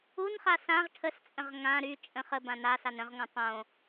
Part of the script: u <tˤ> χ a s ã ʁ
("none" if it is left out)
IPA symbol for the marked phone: n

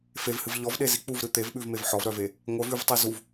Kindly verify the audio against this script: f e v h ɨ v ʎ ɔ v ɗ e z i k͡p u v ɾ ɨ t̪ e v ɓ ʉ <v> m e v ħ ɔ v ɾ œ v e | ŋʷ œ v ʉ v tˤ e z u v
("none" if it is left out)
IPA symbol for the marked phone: v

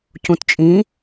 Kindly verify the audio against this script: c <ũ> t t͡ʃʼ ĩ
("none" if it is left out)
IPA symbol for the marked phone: ũ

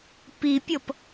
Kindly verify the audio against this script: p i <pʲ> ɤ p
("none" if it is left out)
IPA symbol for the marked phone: pʲ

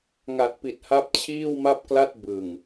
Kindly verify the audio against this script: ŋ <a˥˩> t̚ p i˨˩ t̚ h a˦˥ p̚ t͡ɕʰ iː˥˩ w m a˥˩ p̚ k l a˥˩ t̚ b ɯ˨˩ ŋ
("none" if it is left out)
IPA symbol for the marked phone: a˨˩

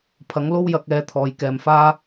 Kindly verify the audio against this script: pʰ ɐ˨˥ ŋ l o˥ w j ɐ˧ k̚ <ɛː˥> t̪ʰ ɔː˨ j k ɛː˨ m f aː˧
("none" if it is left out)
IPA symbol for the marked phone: ɛː˨˥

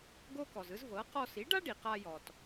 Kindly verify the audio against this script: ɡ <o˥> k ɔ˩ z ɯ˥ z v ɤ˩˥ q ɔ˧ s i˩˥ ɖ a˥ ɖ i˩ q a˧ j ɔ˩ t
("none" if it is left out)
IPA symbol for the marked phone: o˥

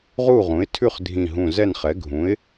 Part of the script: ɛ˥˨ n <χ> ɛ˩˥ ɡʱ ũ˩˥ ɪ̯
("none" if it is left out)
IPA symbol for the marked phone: χ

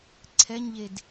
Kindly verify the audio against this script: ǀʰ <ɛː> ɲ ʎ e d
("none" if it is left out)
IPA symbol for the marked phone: ɛ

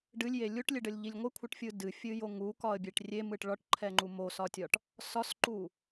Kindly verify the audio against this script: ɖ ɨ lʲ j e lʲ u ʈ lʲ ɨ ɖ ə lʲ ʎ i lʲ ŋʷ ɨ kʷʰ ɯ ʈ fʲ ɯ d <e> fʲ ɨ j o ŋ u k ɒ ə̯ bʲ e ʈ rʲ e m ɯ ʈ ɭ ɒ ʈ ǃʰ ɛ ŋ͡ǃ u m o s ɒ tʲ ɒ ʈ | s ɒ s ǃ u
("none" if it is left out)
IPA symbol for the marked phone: ɨ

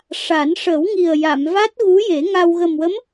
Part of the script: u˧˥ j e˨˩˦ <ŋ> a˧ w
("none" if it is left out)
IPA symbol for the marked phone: ŋ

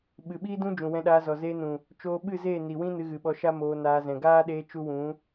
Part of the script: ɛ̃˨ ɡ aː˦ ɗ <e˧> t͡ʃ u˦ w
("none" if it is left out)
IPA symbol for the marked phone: eː˧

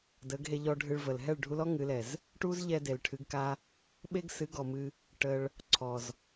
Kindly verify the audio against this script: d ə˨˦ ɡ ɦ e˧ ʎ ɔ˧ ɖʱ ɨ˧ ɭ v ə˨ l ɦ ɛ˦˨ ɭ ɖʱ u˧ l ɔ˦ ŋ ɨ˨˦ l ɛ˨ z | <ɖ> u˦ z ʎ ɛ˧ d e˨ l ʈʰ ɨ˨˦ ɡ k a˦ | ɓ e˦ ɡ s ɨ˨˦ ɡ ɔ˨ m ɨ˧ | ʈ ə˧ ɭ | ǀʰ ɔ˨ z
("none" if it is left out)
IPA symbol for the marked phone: ʈ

